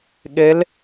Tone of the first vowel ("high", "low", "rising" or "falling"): rising